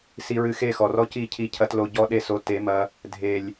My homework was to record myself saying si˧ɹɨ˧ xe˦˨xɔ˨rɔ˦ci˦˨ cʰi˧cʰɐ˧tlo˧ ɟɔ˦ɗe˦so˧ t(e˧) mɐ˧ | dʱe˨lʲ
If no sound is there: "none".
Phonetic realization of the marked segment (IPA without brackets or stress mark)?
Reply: e˨˦